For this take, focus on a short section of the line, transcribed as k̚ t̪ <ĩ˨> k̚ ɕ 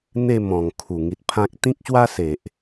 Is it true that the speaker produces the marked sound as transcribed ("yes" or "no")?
no